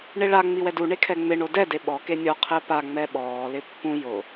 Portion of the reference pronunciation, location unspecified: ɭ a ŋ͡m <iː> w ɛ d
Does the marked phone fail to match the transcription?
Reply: yes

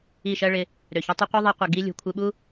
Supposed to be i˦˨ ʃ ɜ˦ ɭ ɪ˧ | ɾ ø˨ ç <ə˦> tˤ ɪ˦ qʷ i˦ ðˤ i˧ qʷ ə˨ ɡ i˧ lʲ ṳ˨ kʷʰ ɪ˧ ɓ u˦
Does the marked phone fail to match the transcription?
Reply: yes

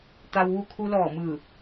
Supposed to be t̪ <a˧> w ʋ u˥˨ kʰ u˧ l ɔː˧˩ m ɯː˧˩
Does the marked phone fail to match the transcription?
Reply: no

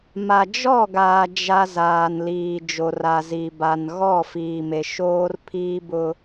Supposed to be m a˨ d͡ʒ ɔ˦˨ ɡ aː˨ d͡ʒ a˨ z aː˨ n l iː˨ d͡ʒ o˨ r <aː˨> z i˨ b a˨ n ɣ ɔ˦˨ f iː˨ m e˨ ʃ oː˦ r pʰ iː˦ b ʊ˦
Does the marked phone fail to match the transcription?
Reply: yes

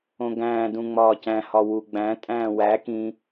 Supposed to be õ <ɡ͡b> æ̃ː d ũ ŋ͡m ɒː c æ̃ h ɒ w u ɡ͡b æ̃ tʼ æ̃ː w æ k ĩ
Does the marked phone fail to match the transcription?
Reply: yes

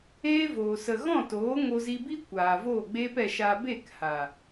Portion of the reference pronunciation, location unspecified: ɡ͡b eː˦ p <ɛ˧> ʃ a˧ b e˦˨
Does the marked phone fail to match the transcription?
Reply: no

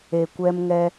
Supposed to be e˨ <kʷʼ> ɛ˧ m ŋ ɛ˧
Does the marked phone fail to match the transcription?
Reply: yes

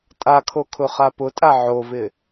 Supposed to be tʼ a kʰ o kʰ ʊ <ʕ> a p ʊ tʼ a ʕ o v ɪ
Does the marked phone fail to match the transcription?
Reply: yes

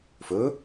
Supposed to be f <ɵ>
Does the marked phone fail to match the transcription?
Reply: no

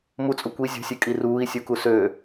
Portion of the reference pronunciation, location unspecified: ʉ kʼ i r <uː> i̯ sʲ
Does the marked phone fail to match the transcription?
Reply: no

